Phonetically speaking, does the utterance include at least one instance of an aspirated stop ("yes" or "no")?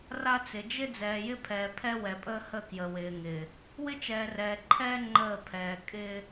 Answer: yes